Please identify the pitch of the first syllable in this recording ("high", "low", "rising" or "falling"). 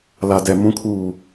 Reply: low